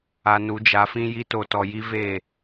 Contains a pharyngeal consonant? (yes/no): no